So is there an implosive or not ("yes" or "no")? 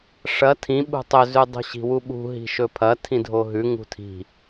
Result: yes